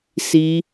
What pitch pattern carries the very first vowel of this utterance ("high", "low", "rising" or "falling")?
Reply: high